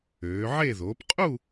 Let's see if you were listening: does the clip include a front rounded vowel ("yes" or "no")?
yes